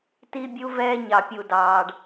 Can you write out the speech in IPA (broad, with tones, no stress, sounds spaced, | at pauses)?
t i˦ bʲ u˦ v ɛː˦ ɲ ɑ˨ pʲ u˨ d ɑː˨ ɖ